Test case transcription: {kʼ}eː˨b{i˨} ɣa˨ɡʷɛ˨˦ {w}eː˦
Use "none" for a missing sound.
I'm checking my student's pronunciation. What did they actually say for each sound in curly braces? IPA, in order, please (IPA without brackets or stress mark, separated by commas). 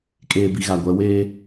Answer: kʼ, i˨, w